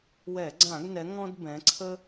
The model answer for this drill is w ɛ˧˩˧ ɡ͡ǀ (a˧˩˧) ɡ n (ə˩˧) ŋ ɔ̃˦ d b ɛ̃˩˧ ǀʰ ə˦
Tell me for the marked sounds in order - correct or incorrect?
incorrect: ã˧˩˧, incorrect: ɛ˩˧

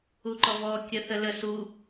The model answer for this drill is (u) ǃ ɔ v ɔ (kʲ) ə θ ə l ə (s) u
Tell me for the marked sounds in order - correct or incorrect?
correct, correct, correct

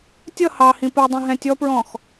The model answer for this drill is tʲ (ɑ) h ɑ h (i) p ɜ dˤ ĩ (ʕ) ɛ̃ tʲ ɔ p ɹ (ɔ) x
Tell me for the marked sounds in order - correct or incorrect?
incorrect: ʌ, incorrect: ĩ, incorrect: ɦ, incorrect: ɔ̃

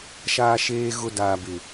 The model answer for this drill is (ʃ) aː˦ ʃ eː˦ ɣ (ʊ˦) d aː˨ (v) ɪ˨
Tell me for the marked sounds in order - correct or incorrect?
correct, correct, incorrect: b

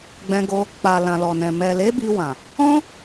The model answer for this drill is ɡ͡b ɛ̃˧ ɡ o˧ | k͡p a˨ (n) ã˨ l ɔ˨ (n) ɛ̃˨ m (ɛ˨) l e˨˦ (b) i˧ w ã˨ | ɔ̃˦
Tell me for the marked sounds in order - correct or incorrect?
incorrect: l, correct, correct, correct

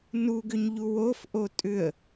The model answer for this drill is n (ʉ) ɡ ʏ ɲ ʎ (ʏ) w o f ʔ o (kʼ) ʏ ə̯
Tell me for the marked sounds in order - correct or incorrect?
incorrect: u, incorrect: u, incorrect: tʼ

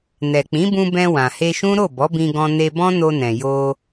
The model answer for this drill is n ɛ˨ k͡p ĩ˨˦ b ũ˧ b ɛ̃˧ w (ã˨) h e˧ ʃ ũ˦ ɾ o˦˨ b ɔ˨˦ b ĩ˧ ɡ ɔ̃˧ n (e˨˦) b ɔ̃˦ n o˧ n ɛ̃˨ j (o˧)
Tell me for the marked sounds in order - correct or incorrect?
correct, incorrect: e˧, correct

